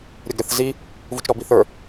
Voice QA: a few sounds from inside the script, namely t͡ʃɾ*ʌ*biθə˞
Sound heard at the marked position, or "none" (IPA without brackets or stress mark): ɔ